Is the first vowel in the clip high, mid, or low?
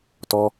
mid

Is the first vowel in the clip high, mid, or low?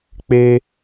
mid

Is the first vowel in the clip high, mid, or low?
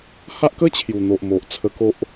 low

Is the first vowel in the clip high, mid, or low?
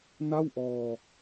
low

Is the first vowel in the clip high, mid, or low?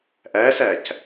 low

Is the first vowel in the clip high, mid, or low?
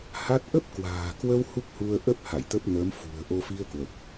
low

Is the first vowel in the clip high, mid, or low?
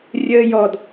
mid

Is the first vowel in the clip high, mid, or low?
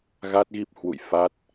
low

